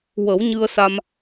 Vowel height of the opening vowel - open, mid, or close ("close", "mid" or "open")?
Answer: mid